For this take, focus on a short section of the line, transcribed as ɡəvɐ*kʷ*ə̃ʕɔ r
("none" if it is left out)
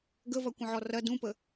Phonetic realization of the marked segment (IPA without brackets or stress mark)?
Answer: kʷ